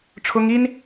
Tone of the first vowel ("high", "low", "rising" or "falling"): high